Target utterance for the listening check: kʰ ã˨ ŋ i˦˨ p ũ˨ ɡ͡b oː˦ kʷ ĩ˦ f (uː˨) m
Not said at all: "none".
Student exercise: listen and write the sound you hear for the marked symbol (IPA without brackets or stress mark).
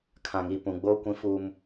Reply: uː˦